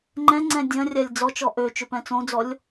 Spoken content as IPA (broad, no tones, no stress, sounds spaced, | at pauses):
ŋ͡ǃ ɛ̃ ŋ͡ǀ ɛ̃ dʲ ɐ̃ rʲ a lʲ d͡z ɔ t͡ʃ ɔ ʔ ø t͡ʃ ʏ p ɛ̃ t͡s õ d͡z ɔ lʲ